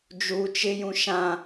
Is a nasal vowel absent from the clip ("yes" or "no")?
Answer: no